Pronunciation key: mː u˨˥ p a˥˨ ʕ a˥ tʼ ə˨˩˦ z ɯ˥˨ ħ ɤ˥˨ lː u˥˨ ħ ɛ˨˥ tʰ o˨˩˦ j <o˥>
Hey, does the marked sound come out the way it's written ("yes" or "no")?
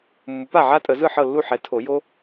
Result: yes